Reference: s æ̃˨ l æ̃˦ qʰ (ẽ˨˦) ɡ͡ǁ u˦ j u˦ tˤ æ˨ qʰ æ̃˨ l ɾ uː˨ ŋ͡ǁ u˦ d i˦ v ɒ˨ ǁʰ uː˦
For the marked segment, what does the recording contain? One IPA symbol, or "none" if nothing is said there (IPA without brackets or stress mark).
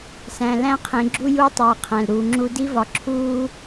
ẽ˨˦